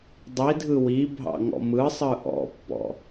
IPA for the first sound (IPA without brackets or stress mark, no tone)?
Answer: dˤ